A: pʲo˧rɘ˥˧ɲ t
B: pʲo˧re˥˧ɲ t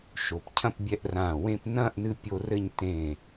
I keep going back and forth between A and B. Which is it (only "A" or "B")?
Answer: A